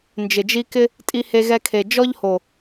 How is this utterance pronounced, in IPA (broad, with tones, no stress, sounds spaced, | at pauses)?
n d͡ʒ ɪ˨ d͡ʒ i˦ k ɪ˧ | tʼ i˧ h e˧ ɣ ɛ˧ kʰ e˨ d͡ʒ ɔ˦ ʎ h o˨